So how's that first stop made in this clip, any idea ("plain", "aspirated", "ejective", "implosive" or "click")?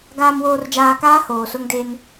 plain